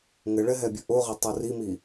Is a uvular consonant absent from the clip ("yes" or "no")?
no